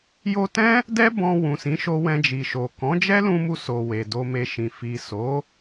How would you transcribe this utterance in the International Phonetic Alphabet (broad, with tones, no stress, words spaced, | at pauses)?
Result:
jo˧tɛ̃˦ | dɛ˦ bɔ̃˧ wũ˨sĩ˨˦ʃo˧ wɛ̃˧d͡ʒi˨ʃo˨ kɔ̃˨˦d͡ʒɛ˦lũ˧mu˧ so˨ we˨do˧me˧ʃĩ˨ fi˨so˨˦